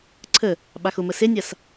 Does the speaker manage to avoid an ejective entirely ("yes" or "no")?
yes